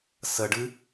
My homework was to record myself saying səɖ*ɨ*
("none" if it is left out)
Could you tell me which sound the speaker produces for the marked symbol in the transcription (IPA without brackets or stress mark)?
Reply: ɨ